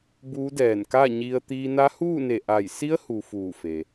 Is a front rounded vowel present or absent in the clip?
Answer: absent